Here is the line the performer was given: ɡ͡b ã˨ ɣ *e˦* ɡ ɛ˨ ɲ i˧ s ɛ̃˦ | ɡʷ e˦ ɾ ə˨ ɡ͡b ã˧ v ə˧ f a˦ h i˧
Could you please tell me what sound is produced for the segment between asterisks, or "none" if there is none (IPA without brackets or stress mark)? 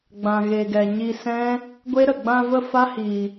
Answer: e˨